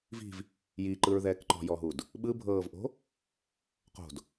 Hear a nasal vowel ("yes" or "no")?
no